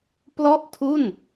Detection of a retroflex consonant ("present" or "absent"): absent